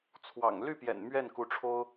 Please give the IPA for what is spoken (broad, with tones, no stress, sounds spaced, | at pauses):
t͡sʰ w ɑ̰˨˩ ŋ l y˥˩ p j ɛ̰˨˩ n m ɥ ɛ˥˩ n k u˧˥ ʈ͡ʂʰ o˥ ʊ̯